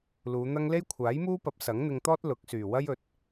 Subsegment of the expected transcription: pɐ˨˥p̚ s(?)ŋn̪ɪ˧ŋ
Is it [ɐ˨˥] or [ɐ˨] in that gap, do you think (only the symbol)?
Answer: ɐ˨˥